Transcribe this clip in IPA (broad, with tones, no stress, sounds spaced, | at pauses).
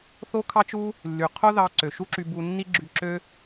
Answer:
θ o˥ kʰ ɑ˥ t͡ʃ u˥ | lː y˩ qʰ o˥ ð ɑ˧ ǀ ø˩ ʃ u˥ ǁ y˧ b u˧ nː i˥ ɡ͡ǁ y˧ ǁ ø˥